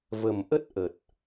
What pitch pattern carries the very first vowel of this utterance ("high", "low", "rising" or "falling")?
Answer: low